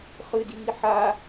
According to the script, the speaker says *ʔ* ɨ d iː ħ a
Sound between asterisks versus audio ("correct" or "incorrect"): incorrect